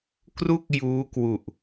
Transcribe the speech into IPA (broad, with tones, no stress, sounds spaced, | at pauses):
k r u˥˩ k̚ j uː˦˥ k w u˨˩ ʔ